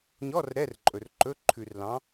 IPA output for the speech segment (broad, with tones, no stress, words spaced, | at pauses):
ɲɔ˧˥˧r ɾɛ˧˥˧rǃʼɵ˨rǃɵ˧˥˧ ǃʰʉ˨rlɑ̃˨˥